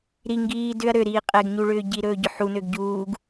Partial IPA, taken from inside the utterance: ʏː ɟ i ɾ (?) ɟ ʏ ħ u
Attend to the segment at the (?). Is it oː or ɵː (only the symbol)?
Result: ɵː